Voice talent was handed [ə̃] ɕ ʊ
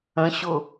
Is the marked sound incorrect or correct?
correct